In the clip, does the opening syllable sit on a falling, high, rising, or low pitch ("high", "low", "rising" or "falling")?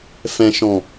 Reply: low